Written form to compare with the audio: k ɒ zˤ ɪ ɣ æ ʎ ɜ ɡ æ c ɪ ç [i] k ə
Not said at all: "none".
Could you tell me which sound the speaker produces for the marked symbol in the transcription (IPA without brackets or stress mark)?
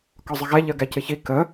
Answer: i